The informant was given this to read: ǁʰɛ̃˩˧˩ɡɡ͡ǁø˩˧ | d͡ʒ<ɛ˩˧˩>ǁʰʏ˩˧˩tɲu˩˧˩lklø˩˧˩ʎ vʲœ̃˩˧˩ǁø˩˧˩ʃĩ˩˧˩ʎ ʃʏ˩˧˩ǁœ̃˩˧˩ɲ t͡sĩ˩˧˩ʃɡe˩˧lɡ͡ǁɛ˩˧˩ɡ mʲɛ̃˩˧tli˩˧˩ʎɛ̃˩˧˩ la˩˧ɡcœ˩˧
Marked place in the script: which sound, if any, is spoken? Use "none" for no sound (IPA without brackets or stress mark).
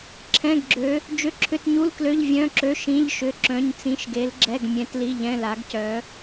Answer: ʏ˩˧˩